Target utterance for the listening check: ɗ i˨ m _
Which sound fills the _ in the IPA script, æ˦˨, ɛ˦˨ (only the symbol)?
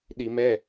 ɛ˦˨